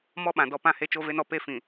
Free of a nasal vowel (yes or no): no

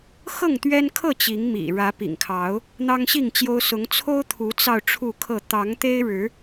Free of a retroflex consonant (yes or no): no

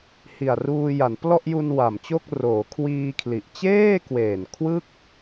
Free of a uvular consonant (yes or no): yes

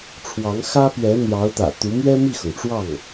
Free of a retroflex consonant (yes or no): no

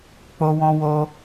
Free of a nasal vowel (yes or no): no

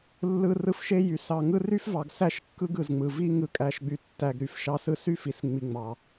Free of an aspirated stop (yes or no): yes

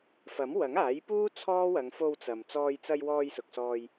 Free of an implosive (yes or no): yes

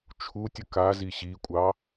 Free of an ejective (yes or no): no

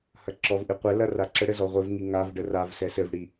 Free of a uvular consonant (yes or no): no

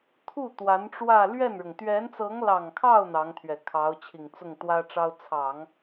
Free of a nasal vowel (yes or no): yes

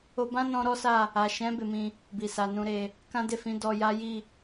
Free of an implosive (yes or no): yes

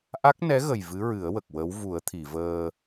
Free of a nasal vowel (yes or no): yes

